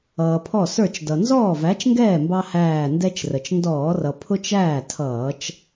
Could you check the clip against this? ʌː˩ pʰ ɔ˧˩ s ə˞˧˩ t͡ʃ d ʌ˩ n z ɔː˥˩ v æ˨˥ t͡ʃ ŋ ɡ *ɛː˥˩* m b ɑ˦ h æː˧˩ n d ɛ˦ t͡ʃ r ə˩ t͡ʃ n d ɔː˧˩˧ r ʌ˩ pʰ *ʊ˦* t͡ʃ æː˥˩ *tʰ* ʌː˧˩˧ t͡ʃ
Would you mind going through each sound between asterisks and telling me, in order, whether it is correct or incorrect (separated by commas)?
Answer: correct, correct, correct